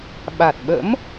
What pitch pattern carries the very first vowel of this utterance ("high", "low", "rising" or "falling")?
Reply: low